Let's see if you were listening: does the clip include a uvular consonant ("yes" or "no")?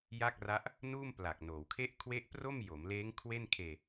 no